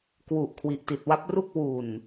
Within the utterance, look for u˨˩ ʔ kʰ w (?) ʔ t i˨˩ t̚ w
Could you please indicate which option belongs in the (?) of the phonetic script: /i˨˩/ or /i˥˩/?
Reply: i˨˩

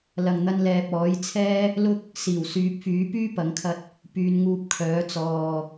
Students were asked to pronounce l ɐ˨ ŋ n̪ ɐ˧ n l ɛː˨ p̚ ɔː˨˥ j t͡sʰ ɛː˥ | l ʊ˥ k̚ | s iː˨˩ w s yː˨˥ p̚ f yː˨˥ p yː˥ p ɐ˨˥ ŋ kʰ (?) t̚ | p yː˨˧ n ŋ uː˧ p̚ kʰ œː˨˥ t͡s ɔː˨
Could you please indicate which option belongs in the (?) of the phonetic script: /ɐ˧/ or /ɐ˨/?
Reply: ɐ˧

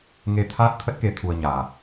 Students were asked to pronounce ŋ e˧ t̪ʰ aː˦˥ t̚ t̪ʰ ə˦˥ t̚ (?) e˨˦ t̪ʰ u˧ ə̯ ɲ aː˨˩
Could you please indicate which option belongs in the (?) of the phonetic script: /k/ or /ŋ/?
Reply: k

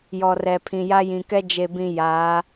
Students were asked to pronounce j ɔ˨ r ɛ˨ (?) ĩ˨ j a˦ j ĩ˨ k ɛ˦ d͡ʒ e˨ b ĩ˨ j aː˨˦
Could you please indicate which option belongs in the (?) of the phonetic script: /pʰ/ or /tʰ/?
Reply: pʰ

